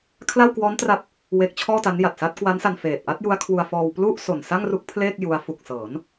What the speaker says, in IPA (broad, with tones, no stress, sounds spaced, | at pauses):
kʰ l a˥˩ w k w ɔː˦˥ n t r a˦˥ p̚ | w e˦˥ k̚ t͡ɕʰ ɔː˥˩ t a˦˥ n j a˨˩ t̚ s a˦˥ t̚ k w a˦˥ n s a˧ n f eː˨˩ t̚ ʔ a˦˥ t̚ j u˦˥ a̯ kʰ w u˧ a̯ f ɔː˧ w p l u˥˩ ʔ s o˨˩ n s a˥˩ ŋ r u˦˥ k̚ pʰ l eː˥˩ k̚ j u˦˥ a̯ f u˨˩ k̚ s ɤː˩˦ n